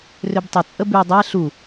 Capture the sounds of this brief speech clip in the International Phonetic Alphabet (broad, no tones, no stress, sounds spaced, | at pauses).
r ø b tˤ ɪ t͡sʼ ə b y dˤ ɛ ɬ u